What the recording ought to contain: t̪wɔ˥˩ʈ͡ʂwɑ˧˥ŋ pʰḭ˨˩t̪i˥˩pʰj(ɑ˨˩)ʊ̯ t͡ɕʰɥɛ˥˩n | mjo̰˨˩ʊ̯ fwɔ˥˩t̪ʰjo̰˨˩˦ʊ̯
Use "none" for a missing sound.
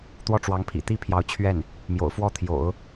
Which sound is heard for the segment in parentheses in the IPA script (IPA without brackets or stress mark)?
ɑ˧˥